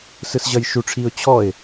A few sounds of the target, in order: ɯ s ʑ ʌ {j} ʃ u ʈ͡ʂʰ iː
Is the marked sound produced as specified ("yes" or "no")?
yes